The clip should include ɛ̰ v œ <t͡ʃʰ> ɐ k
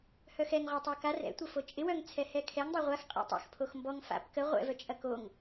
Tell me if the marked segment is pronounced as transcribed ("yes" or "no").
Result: no